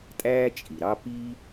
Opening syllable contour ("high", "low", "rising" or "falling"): high